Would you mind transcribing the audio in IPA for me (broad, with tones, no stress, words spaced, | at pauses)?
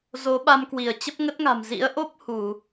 zo˨˦ɓa˧mkwi˧˩ə̯t͡ɕə˦˥p̚ ŋə˦˥t̚ŋa̤˨˩m zḭ˧˥ə̯ʔo˦˥p̚ hu˧˩˨